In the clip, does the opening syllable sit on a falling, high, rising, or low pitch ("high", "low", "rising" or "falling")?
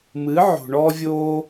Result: rising